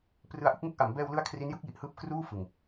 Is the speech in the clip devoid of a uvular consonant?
yes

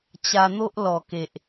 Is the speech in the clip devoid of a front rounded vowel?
yes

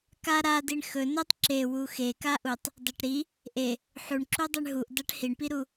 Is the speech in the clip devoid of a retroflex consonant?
no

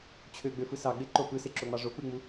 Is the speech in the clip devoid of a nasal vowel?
yes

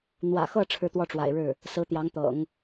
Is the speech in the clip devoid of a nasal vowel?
yes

